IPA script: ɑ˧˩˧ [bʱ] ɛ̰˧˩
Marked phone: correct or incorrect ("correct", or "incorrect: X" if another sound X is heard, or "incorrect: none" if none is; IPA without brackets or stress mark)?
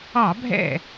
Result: correct